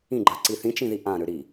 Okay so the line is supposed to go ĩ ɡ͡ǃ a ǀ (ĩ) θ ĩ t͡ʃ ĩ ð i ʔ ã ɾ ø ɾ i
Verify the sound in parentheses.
incorrect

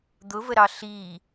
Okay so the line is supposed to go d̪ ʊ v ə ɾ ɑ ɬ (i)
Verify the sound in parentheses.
incorrect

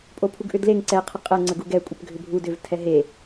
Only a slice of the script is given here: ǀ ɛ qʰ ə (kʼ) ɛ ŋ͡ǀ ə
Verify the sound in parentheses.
incorrect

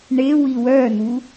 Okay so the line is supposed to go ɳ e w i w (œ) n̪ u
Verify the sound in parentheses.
correct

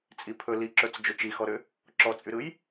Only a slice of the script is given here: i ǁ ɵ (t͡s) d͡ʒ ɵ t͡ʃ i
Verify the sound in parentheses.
correct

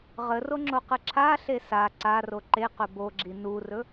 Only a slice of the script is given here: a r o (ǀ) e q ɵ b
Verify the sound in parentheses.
incorrect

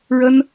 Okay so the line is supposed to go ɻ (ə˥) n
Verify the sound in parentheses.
correct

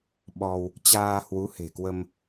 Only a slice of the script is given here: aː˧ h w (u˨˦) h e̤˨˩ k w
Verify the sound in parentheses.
correct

